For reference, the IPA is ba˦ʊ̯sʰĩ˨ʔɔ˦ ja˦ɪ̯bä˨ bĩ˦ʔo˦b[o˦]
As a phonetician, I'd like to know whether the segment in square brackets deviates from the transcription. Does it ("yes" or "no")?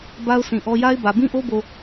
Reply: yes